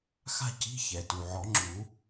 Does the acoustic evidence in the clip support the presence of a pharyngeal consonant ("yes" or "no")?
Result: yes